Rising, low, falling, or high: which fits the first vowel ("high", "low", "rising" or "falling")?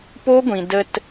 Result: high